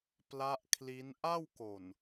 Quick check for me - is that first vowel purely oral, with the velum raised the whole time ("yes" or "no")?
yes